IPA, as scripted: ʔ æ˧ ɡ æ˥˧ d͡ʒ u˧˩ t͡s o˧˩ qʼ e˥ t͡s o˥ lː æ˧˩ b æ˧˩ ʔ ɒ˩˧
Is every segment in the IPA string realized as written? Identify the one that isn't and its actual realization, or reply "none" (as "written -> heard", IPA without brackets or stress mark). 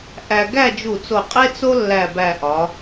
none